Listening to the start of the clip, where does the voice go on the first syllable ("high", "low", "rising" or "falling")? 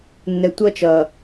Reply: low